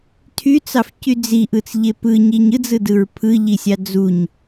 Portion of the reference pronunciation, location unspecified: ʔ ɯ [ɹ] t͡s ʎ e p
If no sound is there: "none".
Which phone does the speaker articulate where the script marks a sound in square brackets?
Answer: none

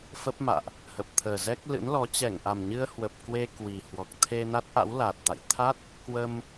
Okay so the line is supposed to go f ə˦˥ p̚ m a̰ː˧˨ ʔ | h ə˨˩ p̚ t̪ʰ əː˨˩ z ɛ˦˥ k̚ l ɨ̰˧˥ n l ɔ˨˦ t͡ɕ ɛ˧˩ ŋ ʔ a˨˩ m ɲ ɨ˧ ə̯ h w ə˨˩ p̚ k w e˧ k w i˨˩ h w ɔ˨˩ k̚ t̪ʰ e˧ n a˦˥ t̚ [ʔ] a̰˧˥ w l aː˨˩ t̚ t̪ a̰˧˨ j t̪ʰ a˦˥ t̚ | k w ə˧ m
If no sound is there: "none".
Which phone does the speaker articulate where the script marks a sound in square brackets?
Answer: ʔ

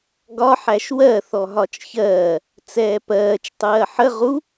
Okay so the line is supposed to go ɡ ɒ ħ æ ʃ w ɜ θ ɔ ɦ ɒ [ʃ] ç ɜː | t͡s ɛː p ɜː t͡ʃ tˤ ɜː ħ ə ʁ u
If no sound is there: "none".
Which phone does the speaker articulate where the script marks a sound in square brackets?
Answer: t͡ʃ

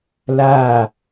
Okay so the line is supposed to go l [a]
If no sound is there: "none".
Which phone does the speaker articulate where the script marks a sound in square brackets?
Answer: a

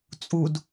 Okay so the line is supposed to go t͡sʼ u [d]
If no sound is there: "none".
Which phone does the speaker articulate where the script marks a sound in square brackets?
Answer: d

